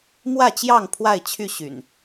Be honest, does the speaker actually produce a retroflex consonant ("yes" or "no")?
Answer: no